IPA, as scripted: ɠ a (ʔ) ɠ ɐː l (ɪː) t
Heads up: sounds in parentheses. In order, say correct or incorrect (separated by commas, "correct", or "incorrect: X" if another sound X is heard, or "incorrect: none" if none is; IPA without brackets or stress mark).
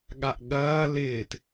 correct, correct